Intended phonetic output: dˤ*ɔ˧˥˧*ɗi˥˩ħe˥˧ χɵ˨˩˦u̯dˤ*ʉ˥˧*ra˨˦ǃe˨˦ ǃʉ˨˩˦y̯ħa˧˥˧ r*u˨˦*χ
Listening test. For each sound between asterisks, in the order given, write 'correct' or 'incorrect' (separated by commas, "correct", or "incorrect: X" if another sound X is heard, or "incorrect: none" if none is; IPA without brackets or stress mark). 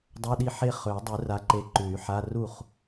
incorrect: ɵ˧˥˧, incorrect: ʉ˨˩˦, incorrect: u˥˩